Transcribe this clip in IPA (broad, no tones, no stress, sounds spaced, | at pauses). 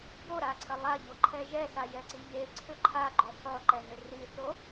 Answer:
b o ɾ a ǀʰ ə lˠ a ʎ o ǃʰ ɛ ʒ ɛ s a j ɛ ǀ i ʎ e ǀʰ ʏ ǃʰ a ɡ͡ǃ ʏ sˤ o ǃ ɛ n ʏ r i θ o